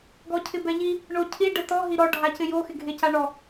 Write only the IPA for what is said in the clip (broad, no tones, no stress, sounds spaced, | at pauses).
ɡ ɔ cʰ ɪ b ɛ ʎ i | ɳ o cʰ i ɖ ɛ t ɔ ɦ i ɾ ɔ ɖʱ a c ɪ j o x ɪ ɡʱ e c a ɳ ɔ